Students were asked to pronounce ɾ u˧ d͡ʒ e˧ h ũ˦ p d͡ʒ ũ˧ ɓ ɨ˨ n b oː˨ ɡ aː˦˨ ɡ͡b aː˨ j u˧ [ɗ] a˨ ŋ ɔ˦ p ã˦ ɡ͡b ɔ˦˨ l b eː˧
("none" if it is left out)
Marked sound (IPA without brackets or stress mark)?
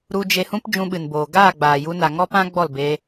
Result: n